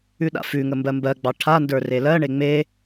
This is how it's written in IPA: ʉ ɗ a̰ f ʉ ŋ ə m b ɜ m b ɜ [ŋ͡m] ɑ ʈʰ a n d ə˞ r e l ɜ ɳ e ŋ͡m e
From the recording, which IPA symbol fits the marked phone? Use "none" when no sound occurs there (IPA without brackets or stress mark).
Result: ɡ͡b